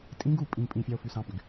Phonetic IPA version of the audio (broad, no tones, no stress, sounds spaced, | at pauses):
tʼ ĩ ɡ u pʼ ĩ pʼ ĩ fʲ ɑ o̯ f y s ɑ̃ p y ɡ